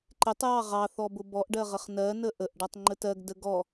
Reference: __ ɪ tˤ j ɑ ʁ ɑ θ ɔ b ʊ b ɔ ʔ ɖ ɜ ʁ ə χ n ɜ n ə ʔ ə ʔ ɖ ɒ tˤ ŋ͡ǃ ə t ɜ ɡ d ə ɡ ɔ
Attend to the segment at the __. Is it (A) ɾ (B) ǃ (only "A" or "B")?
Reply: B